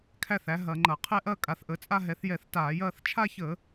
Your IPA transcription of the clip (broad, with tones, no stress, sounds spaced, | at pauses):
kʰ æ˥˧ θ æ˩˥ ɦ ɐ˧˩˧ ŋ͡ǃ ɐ˧˩˧ qʰ ɛ˥˧ ʔ ɐ˥˧ kʼ a˩˥ θ ʔ ə˩˥ t͡sʼ a˥˧ ɦ ɛ˩˥ θ j ɛ˧˩˧ θ t aː˧˩˧ j ɐː˥˧ θ t͡ʃʰ a˥˧ ç ə˧˩˧